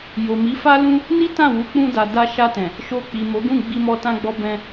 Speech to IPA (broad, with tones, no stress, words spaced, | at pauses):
jo˨mi˨˦fa˦ lũ˦ | ni˦tã˦˨wu˨˦ k͡pũ˧da˨ da˧ʃa˧tɛ̃˨ | ʃo˧k͡pi˨mo˨˦ɡũ˦˨ ɡ͡bi˧mɔ˧ tã˧ɡ͡bɔ˧ bɛ̃˧